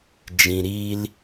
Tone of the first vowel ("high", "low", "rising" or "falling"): low